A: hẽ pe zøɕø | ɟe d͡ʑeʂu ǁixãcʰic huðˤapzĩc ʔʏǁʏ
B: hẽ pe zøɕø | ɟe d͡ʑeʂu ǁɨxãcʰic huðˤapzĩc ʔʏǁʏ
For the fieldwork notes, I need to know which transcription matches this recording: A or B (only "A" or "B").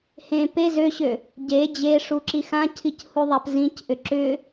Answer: A